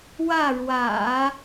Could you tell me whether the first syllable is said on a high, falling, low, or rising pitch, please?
falling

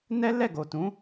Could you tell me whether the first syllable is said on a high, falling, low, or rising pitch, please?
high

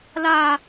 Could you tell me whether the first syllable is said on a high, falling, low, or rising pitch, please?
high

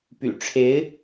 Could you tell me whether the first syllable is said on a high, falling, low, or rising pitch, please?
low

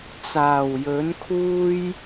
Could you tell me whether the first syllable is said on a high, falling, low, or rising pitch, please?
low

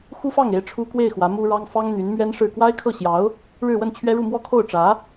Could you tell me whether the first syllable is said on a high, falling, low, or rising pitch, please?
high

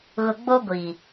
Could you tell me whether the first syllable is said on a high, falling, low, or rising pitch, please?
low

